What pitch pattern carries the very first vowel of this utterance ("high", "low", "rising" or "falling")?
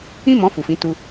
high